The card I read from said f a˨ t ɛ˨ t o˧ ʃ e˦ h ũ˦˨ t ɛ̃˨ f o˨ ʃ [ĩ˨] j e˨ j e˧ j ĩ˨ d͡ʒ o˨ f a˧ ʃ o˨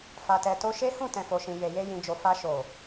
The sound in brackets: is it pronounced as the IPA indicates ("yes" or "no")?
yes